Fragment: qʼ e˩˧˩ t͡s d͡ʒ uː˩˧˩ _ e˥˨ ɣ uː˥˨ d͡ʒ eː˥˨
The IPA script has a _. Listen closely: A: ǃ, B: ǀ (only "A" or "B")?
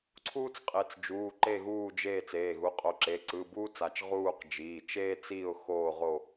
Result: A